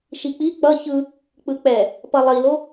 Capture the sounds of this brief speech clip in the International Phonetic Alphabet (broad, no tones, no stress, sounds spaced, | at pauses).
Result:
ʃ i k͡p i k͡p ʌ ç ɯ | k͡p ɯ k͡p ɛ | p ʌ lˠ i l o